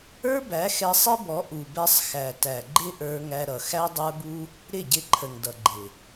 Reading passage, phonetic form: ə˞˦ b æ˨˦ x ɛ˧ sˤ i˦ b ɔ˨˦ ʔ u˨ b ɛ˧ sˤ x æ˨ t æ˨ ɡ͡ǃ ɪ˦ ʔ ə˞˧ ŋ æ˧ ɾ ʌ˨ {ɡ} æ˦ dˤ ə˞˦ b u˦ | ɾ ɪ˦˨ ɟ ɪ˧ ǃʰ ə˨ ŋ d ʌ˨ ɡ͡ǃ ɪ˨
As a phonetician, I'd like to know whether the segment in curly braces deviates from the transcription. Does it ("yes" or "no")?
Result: yes